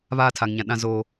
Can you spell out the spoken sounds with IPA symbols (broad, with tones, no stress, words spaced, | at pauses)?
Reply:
βaː˦tʰa˨ŋɲã˨ɗã˦ zoː˦